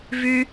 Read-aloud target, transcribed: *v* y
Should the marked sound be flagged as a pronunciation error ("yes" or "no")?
no